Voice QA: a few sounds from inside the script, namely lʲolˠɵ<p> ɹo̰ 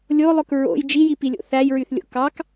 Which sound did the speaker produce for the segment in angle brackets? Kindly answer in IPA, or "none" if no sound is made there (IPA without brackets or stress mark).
k